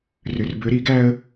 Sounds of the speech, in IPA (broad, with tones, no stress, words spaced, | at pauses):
rʏ˩˧˩rbʏ˨˦ɾi˨˩˦ɡæ˦ə̯